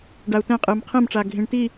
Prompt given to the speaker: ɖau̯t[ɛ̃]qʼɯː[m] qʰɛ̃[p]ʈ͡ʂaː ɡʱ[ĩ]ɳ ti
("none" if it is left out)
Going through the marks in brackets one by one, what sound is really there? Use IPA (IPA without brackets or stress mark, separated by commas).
ɛ̃, m, m, ĩ